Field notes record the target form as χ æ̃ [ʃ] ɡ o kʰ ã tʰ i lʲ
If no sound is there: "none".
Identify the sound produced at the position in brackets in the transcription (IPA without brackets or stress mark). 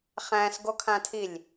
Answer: s